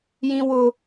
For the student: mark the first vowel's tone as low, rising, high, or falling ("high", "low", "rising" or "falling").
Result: high